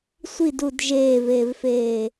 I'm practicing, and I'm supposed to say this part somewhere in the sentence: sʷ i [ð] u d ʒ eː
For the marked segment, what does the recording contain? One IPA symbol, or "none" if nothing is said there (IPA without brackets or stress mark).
d